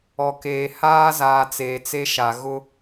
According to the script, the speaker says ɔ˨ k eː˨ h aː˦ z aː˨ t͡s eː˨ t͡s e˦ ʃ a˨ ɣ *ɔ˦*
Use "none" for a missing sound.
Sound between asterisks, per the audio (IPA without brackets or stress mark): ʊ˦